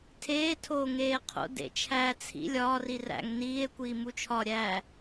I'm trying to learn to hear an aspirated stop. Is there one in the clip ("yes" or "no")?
yes